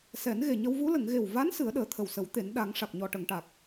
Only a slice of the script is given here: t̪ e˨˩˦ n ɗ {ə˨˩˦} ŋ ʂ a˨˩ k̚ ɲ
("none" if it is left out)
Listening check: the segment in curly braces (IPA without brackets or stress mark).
a˨˩˦